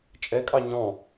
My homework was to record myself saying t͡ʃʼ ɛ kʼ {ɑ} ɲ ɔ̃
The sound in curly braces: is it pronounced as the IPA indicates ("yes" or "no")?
yes